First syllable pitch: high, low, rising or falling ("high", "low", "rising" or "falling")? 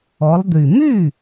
rising